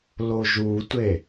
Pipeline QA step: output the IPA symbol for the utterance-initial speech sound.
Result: l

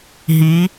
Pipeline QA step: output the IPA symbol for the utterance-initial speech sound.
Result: ɦ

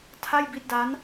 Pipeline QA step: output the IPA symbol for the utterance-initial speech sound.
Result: tʰ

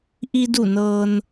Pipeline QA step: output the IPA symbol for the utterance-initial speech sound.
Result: ʔ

